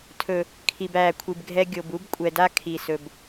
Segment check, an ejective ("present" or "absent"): present